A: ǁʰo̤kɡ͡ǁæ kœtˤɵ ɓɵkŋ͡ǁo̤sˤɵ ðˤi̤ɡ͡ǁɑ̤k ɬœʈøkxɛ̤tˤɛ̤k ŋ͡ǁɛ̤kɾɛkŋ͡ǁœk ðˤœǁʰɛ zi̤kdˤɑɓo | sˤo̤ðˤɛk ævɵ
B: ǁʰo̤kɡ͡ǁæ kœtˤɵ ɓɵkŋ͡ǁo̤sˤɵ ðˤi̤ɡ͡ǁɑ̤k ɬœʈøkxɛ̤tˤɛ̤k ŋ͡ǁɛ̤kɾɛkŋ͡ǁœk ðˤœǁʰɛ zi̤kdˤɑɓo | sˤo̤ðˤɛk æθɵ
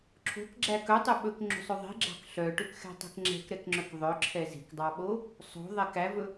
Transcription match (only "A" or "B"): A